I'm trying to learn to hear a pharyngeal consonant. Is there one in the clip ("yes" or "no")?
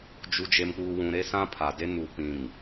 no